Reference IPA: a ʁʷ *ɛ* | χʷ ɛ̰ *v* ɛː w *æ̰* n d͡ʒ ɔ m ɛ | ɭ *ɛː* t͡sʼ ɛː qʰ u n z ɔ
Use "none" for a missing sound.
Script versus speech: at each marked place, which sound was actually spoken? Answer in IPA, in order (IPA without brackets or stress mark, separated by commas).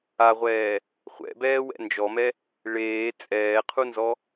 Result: ɛː, b, ɛ̰, eː